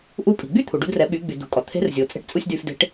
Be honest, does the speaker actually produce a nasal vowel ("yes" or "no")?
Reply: no